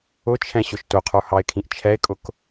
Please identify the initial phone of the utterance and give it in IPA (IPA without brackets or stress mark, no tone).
ʊ